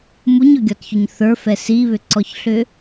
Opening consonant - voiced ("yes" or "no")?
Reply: yes